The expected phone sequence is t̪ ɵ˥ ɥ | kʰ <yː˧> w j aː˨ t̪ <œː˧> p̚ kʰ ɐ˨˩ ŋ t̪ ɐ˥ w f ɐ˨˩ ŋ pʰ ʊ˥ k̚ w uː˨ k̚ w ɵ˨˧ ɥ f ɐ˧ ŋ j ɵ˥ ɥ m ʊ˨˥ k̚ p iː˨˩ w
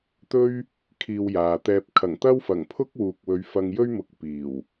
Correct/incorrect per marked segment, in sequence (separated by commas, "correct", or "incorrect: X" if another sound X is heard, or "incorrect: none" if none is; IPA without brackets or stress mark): incorrect: iː˧, incorrect: ɛː˧